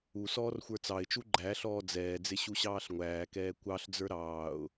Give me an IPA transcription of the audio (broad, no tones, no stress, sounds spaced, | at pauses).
u s ɔː r xʷ ə˞ t͡s ɑ ɪ̯ t͡ʃ u ɡ͡ǃ æ ɬ ɔː d͡z ɛː d͡z ɪ ɕ u ɕ ɑː ɬ ŋʷ æː k ɛː kʷ ɑ ɬ d͡z ə˞ ɾ ɑː ʊ̯